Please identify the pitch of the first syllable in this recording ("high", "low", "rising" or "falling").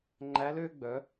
rising